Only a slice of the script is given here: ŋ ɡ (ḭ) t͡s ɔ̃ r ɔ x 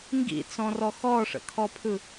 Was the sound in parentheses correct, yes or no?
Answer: yes